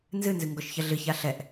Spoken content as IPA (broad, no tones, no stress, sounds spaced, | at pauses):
n z ɨ n z ɨ ŋ ɡ ɔ ʃ ç ɐ ɮ ɨ ç a ɬ ɛ ʔ